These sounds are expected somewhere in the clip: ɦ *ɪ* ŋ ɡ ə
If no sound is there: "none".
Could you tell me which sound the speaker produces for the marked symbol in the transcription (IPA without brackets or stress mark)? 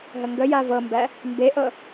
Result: ə